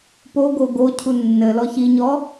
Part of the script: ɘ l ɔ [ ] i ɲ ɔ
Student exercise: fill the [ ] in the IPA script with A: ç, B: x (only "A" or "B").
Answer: A